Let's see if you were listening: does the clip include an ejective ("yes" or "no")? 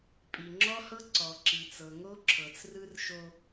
yes